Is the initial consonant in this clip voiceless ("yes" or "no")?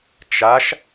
yes